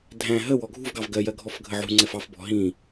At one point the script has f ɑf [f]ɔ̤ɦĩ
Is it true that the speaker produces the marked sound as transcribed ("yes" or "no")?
no